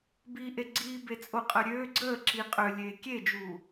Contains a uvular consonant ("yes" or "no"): yes